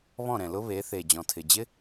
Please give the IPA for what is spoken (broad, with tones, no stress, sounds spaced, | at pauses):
β ɔ̃˥˩ ɾ ɛ̃˨˩ l ʊ˦˥ β e˩˥ θ e˨˩ d͡ʑ ɔ̃˨˩ tʰ ɪ˨˩ d͡ʑ ɪ˦˥